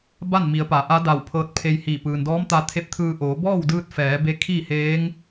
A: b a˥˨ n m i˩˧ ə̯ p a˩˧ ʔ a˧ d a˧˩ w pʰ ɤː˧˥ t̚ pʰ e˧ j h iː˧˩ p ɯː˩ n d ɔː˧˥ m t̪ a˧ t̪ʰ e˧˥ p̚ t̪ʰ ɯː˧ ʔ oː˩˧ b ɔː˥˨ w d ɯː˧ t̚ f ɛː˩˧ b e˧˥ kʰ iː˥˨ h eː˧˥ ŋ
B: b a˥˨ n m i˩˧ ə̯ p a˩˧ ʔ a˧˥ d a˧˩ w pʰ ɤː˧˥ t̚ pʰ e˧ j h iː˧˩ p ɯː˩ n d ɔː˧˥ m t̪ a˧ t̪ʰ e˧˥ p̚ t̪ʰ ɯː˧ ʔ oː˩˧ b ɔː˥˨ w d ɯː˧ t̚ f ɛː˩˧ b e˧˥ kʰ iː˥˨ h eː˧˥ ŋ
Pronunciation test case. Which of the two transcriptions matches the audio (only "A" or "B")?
B